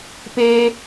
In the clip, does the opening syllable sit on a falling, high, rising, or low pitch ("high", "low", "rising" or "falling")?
high